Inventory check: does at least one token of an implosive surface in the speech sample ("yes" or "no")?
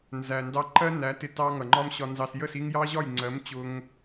no